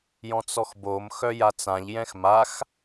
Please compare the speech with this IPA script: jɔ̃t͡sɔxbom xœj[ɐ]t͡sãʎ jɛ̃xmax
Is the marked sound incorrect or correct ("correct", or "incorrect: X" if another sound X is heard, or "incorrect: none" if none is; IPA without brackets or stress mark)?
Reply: incorrect: a